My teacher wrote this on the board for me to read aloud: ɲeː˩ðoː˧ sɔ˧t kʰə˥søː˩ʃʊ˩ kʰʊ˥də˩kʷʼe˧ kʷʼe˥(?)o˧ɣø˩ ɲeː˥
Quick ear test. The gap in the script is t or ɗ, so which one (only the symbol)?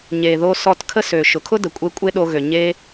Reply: ɗ